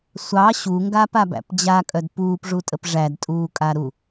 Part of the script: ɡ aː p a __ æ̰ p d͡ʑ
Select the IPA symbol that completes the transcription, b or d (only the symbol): b